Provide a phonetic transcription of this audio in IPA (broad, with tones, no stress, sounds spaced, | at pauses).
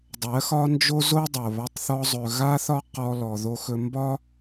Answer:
dˤ ɜ˨˦ x ɒ˦ n d͡ʒ o˦ z o˦ dˤ o˨ β a˧ tˤ θ ɔ˧ zˤ ɵ˨ ɣ a˦ θ ɒ˦ q ɔ˧ l ɔ˨ ð o˧ x ɵ˧ m b ɒ˦